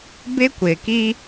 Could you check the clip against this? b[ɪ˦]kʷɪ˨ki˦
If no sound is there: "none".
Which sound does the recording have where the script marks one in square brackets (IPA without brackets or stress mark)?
ɪ˦